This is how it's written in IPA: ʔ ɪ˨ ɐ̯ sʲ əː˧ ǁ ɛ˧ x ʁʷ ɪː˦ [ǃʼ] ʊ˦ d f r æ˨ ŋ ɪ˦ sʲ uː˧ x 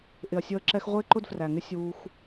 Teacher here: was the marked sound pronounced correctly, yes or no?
no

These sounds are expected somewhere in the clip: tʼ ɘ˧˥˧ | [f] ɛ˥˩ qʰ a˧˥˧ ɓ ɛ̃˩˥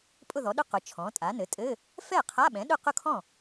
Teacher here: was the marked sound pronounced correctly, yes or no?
yes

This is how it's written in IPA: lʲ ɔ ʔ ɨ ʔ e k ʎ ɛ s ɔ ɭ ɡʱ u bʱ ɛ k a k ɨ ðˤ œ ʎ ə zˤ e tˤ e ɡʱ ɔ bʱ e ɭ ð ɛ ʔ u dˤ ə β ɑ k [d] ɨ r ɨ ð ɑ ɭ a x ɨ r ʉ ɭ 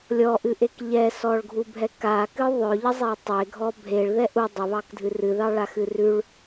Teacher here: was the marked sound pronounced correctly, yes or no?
no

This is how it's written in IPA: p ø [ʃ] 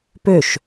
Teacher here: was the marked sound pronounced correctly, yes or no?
yes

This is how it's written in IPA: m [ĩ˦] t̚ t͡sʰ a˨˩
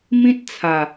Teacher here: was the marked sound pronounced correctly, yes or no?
yes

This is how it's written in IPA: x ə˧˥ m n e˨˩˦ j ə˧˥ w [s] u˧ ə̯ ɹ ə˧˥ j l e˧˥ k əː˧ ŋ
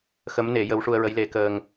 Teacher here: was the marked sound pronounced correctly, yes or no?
no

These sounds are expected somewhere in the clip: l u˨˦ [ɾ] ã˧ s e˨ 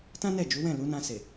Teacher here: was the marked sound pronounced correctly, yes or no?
no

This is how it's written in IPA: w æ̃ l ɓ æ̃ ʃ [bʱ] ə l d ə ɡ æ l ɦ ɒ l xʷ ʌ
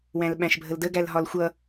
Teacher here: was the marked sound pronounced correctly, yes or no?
yes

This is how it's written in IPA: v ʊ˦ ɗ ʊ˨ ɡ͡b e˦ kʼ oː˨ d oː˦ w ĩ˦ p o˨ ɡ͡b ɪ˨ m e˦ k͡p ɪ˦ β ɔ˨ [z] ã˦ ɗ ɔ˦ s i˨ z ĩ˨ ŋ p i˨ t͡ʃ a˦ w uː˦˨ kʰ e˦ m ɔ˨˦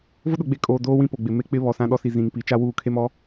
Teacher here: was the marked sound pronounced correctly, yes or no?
no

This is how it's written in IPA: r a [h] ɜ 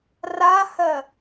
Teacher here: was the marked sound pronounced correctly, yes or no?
yes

